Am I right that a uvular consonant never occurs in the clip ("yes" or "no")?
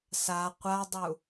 no